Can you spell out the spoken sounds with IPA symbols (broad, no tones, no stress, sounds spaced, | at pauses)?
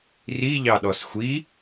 r i ʎ ɑ ɗ ɔ s xʷ i